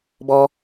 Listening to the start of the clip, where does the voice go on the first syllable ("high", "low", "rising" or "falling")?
high